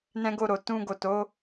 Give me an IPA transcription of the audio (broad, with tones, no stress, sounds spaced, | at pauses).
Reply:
n ɛ̃˦ ɡ o˦˨ ɾ o˨ t ũ˧ ɡ o˨ t o˨˦